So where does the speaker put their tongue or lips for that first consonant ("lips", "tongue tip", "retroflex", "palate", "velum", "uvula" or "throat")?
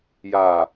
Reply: palate